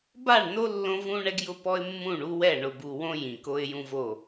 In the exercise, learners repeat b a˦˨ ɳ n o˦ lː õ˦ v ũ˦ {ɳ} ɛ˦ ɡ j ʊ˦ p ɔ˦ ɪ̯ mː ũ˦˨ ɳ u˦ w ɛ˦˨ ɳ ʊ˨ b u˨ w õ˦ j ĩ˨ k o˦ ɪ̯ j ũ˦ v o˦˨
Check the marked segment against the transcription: correct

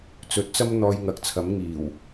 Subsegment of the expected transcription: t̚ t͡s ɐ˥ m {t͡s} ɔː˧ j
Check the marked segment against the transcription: incorrect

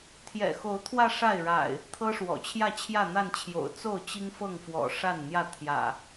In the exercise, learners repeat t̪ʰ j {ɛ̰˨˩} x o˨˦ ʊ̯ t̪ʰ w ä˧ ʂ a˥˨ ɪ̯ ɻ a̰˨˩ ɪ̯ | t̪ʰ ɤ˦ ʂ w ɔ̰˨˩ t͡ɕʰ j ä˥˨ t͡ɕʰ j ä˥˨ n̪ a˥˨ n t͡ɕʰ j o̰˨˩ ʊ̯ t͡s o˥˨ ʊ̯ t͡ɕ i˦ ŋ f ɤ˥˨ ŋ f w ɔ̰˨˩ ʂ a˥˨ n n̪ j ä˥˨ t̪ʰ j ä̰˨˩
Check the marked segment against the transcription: correct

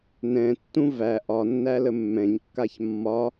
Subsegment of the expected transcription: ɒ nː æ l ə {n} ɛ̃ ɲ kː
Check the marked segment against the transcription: incorrect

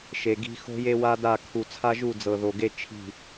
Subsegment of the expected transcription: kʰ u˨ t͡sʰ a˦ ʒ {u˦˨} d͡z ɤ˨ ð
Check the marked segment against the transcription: correct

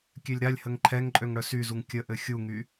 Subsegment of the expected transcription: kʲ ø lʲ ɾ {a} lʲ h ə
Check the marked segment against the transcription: correct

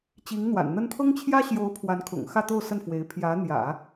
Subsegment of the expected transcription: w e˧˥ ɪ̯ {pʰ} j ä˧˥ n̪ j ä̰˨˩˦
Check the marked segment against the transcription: correct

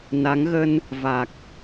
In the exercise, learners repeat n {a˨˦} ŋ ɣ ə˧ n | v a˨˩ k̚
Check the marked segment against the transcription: correct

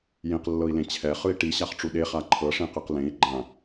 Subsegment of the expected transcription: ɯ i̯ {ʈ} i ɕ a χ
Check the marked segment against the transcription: correct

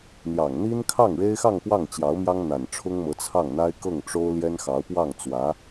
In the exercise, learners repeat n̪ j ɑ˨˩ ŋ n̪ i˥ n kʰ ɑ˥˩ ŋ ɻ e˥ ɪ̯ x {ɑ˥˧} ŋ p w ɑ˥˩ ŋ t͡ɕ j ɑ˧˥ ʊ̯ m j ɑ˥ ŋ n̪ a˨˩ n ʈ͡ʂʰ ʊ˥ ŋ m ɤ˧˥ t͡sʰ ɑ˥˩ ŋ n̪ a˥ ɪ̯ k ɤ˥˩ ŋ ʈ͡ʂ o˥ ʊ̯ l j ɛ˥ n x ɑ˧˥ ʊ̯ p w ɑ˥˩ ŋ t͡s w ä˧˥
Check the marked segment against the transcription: correct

